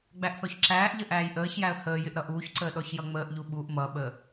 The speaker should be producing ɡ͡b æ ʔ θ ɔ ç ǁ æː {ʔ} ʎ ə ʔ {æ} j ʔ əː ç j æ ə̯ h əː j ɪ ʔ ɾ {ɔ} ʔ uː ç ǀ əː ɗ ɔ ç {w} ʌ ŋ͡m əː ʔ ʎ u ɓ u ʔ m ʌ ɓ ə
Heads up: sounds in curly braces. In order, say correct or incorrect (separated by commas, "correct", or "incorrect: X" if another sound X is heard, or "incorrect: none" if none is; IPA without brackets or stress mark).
correct, incorrect: æː, incorrect: ʌ, incorrect: j